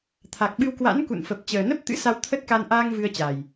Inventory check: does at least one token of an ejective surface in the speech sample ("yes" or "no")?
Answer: no